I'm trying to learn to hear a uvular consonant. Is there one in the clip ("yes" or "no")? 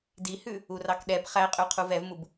yes